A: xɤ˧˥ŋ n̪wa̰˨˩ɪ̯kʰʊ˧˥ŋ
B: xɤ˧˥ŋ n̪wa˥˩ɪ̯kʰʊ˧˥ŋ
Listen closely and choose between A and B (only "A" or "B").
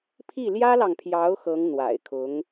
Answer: A